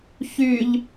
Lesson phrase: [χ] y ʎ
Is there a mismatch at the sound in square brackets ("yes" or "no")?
yes